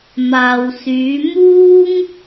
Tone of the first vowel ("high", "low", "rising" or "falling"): low